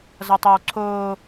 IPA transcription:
zʌtˤɛwǀʰoː

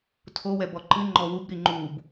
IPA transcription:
tʰowɛ bɔǃɨ ŋ͡ǃɔwubɾi ŋ͡ǃub

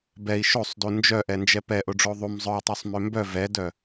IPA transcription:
bɛi̯ ʃosˤdu nd͡ʒœʔɛnd͡ʒɛ pɛʔoɖ͡ʐo ðˤum zˤœu̯tˤosˤmø mbœ vɛdœ

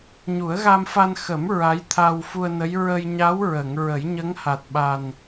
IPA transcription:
ɲu˨˩˦ə̯ɣa˧mfa˧n xə˨˩˦m ɹa˧˥jt̪ʰa˧wfu˧ə̯nə˧˥j ɹə˧jɲa˧˥wɹə˨˩˨ŋ ɹə˨˩˦jɲə˧˥ŋha˨˩t̚ɓa˨˩n

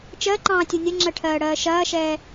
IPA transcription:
t͡ʃɜǃɑ̃ːtʲu nʲɐŋ͡ǁɜʈʰɜːɽɜː ʃɐːʃɛː

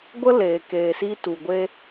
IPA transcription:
ɡʷə˦leː˨keː˨si˧ tu˨ɡʷe˦

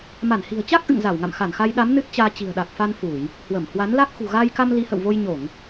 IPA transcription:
ma˧˩nhi̤˨˩ə̯t͡ɕa˦˥k̚ ʔɨ̰˧˨ŋza˧˩wŋa̰˧˨m xa˧˩nxa˧jɗa˨˦m nɨ˦˥t̚t͡ɕaː˧ t͡ɕi̤˨˩ə̯ ɗa˨˩k̚ fa˧n fu˧˩˨j | hwə˧˩mhwa˨˦n la˦˥k̚ xṳ˨˩ɣaː˧jka˧m li˨˦hə̰˧˨wvo˧jɲo˧˩˨ŋ

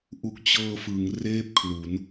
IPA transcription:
ʔu˨˩k̚t͡ɕɤː˧fɯ˩˦ŋ reː˥˩p̚kʰlu˩˦n

